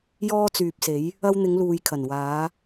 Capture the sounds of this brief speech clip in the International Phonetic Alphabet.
j ɔː˧ t͡s yː˨ p̚ s e˨˧ j | ɐ˧ w n̪ ɪ˨˧ ŋ l uː˨ j kʰ ɐ˨˩ n w aː˨˧

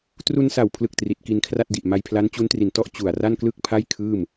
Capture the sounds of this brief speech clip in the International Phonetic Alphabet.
t r u˧ n s a˨˩ w pʰ l ɯ˨˩ k̚ t r i˨˩ t̚ k i˧ n kʰ r a˥˩ t̚ d i˨˩ ʔ m a˧ j pʰ l a˦˥ n t͡ɕ u˦˥ n t r i˨˩ n t ɔ˥˩ ʔ t͡ɕ u˨˩ a̯ r a˥˩ n k l ɯ˥˩ k̚ pʰ a˥˩ j kʰ ɯː˥˩ m

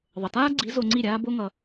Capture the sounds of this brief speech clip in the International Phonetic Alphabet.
ðˤ ə˨ t aː˦ ɡ͡ǀ i˨˦ z o˧ ŋ͡ǀ i˦˨ ɾʲ aː˦ b o˦ ŋ ʌ˧

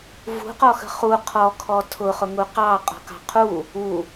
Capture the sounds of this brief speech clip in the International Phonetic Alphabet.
v ṳ q ɔ x ə̤ χ u qʰ ɔ kʰ ɔ tʰ ʊ χ ʊ ŋ u q ɑ qʼ ɔ̤ k ɑ̤ qʰ u | u

